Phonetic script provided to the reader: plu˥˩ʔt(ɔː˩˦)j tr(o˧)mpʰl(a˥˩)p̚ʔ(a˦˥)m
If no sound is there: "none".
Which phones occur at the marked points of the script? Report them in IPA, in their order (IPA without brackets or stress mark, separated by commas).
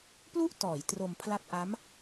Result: ɔː˩˦, o˧, a˦˥, a˦˥